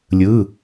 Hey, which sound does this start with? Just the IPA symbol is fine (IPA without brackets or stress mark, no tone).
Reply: lʲ